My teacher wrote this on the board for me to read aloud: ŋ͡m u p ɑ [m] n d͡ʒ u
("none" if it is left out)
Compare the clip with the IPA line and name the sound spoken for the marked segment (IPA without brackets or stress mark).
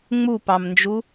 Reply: m